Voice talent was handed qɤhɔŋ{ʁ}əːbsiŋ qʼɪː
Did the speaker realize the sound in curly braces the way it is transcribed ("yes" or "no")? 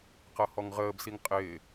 yes